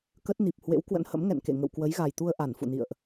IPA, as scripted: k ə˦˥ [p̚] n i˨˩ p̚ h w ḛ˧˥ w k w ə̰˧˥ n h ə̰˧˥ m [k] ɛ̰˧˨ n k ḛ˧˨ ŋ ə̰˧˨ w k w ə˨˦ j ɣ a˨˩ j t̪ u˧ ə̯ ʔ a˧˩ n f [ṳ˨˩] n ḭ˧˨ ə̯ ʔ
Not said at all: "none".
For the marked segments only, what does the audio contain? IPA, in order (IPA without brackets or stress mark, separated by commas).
t̚, ŋ, ṵ˧˨